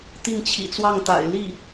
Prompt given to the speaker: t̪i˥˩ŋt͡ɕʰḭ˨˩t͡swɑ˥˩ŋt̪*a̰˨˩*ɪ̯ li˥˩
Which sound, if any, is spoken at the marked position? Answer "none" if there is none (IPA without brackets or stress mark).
a̰˨˩